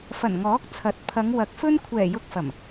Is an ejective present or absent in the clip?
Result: absent